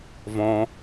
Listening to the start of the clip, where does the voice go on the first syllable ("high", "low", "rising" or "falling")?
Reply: low